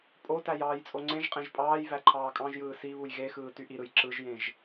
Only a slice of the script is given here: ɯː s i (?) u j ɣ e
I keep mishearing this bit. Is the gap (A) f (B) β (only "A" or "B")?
B